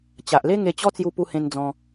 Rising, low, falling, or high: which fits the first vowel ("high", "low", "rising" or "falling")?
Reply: low